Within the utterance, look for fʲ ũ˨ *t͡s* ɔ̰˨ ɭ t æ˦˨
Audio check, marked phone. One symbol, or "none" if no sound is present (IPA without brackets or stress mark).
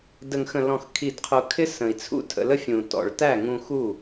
t